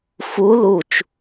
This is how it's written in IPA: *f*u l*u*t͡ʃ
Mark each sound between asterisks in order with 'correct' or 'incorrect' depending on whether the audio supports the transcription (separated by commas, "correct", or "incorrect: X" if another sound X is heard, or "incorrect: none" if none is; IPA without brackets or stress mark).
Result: correct, correct